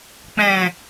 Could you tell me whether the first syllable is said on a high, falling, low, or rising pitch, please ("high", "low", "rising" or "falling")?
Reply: low